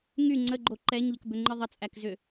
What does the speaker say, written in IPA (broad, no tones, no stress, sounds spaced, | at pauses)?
ŋ y ŋ͡ǀ ə ɡ͡ǃ o ǃ ɛ ɲ ʎ ə k b ʏ ŋ͡ǃ ɨ ðˤ ə t͡sʼ æ k z ʏ